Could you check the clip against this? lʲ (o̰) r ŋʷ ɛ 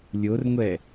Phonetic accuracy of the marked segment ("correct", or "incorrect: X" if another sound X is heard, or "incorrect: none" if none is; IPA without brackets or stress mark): incorrect: o